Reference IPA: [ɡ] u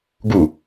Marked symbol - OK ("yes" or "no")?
yes